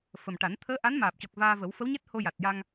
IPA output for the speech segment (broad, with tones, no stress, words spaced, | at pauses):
fə˨˩mʈa˨˩˦n t̪ʰəː˧˥ʔa˧˥nmaː˨˩p̚cɔ˨˩k̚ vaː˧və˨˩˦w fə˧˥wɲɛ˦˥t̚ ho˧ja˨˩t̚ja˧ŋ